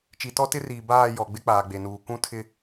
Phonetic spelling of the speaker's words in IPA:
t͡ʃi˨tɔ˦tɪ˦riː˨ baː˦˨ jɔ˨ɡ͡bɪ˦ k͡paː˨ɡ͡be˨nuː˨ kũ˦ tʰɪ˦

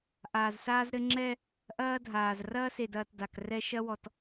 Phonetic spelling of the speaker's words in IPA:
ʔaː˨zsaː˦zɾɘ˦ ŋ͡ǁɛ˦ | ʔɐː˦dʱaː˨z rɐː˦se˨dɐː˨t da˨krɛ˦ ʃɐ˦wɔ˨t

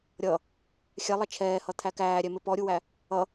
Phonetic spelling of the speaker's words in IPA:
ɾʲʌ | xʲɛlˠɐ t͡ʃʰɛːhʌt̪ʰæ kæːɾʲɛmɪ pɔɾʲuwæ | ʌ

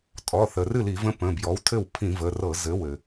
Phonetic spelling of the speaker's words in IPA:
tʼɔ˩˧˩θə˩ rɨ˥˩li˧˩˧və̃˧˥ pə̃˩˧˩bjɔ˩˥wtʰɘ˥˩w pʰĩ˧˩˧və˩˧˩rɤ˧˩˧ zɘ˩˥wɘ˩

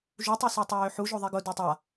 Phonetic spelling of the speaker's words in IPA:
ʒutˤosø tˤøːħuʒoðˤi ɡʊ døtˤa

